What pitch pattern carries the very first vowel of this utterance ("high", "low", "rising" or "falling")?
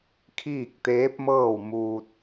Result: falling